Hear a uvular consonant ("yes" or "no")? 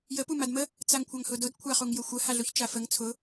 yes